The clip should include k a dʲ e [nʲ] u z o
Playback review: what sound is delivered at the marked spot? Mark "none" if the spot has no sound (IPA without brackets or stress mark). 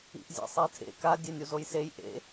nʲ